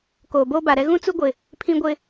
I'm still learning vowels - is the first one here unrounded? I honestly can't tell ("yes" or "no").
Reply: no